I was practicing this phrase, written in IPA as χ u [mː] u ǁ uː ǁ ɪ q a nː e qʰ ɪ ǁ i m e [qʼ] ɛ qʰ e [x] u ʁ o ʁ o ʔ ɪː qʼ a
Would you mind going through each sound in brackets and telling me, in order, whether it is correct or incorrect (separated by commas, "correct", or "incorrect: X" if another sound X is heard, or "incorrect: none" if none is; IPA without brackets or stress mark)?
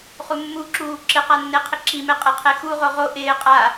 correct, correct, correct